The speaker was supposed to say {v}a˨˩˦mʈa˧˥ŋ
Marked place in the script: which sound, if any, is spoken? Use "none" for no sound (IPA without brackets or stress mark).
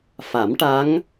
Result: f